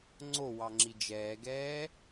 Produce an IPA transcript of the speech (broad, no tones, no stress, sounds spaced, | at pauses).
ŋ͡ǀ o w ɑ ŋ͡ǁ i d͡ʒ ɛː ɡ ɛː